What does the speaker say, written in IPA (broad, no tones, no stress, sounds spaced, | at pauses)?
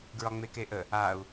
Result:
ɡ ɹ ɒ ŋ͡m e k e ʔ ə | a u̯